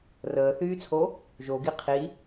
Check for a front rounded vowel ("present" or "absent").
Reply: present